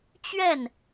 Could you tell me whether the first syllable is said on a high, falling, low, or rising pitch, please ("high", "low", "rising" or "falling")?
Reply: falling